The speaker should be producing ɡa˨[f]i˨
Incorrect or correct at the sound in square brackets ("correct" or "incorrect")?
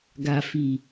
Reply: correct